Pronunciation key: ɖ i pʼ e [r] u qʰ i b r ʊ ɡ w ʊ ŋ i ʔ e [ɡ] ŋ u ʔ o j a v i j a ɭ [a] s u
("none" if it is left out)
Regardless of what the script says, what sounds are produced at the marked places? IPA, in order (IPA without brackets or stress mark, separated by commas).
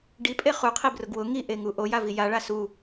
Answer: χ, none, a